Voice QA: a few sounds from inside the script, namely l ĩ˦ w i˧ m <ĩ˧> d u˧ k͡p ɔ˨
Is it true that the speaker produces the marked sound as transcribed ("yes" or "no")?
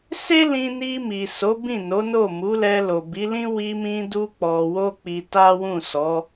yes